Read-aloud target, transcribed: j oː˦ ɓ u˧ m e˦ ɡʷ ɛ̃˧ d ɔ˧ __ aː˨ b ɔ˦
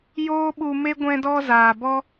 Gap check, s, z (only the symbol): z